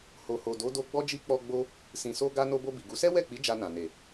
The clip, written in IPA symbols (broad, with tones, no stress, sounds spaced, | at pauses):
h o˨ h o˨ d o˨˦ d o˧ ɡ͡b ɔ˦ d͡ʒ i˦ k͡p ɔ˧ ɡ͡b o˧ | s ĩ˨ s o˧ ɡ a˧ n o˧ b o˧ b i˨ ɡ u˨˦ s ɛ˦ w ɛ˦˨ k͡p i˨˦ d͡ʒ a˧ n ã˨ n e˨